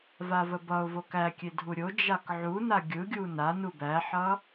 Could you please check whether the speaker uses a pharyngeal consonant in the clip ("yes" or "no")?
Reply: yes